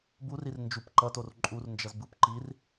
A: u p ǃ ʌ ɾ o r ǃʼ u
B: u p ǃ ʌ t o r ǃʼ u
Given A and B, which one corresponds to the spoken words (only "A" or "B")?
B